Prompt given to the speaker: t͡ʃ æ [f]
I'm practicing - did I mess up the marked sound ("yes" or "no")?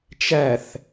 yes